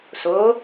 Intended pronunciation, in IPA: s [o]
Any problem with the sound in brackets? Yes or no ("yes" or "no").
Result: no